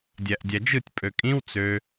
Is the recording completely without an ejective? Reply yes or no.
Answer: no